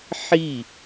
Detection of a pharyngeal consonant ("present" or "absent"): present